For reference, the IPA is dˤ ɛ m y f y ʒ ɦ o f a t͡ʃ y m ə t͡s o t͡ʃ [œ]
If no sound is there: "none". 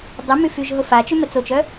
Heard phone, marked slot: œ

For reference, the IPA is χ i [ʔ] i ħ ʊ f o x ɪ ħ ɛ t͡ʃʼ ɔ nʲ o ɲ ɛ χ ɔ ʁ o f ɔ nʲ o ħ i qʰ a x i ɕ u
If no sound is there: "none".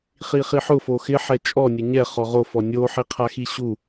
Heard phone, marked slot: χ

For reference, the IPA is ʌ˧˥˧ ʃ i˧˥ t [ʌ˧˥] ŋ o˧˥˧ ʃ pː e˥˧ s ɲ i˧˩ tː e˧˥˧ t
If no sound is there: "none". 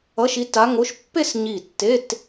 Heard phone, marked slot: a˧˥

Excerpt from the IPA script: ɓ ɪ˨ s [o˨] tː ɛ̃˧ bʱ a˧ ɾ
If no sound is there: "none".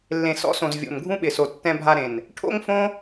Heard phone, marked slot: o˨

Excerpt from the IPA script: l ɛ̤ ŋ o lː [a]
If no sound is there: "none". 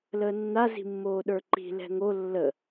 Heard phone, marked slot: ə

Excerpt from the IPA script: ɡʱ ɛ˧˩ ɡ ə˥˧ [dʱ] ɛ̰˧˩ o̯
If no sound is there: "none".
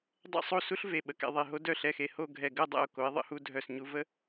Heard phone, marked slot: dˤ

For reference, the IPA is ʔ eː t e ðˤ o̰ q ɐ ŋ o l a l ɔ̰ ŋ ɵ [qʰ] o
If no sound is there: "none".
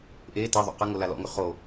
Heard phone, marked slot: χ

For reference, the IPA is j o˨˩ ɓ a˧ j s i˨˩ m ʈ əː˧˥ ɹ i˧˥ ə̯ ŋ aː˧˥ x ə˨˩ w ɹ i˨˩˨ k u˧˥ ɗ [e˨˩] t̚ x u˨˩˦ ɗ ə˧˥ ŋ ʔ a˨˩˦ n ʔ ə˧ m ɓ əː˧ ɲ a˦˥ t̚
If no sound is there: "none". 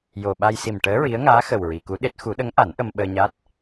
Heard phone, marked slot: e˦˥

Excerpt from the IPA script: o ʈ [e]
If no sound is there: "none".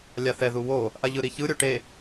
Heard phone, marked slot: e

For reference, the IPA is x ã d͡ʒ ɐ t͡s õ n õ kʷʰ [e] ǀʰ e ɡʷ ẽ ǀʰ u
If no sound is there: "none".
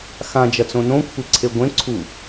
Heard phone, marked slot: e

